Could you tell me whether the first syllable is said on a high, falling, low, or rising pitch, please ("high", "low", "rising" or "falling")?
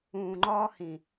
low